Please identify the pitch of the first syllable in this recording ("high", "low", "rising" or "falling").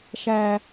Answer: high